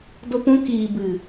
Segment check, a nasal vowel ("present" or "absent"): present